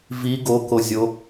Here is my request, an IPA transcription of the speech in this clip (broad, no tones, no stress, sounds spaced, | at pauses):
v i ɡ o k o zʲ o